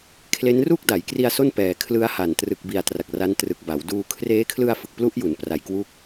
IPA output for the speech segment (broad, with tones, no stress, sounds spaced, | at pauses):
kʰ l e˦˥ n r u˥˩ k̚ d a˩˦ j k r i˧ a̯ s o˥˩ n p ɛː˨˩ kʰ l ɯ˦˥ a̯ h a˨˩ n t r ɯ˨˩ k̚ b i˨˩ a̯ t r a˨˩ k̚ r a˦˥ n t r ɯ˨˩ k̚ b a˩˦ w d uː˧ kʰ r eː˦˥ kʰ l ɯ˧ a̯ f ɯ˨˩ k̚ p l u˦˥ ʔ j u˩˦ n p r a˨˩ j k w u˦˥ k̚